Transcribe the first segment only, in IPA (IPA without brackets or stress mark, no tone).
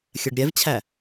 xʲ